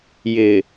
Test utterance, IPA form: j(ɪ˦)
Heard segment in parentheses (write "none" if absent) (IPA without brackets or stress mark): ɪ˨